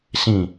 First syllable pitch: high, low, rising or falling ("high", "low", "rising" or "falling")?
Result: falling